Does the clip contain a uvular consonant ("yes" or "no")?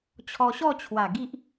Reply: no